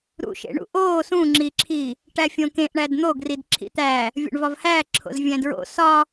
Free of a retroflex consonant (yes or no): no